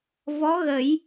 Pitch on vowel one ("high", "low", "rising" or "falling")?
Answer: rising